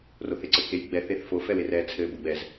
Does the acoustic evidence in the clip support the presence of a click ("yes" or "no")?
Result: yes